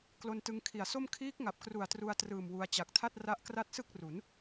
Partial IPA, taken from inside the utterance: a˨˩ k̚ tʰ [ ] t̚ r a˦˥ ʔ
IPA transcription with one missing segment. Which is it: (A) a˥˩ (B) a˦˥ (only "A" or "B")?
A